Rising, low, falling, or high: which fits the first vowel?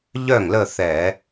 falling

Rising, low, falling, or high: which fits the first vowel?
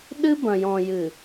high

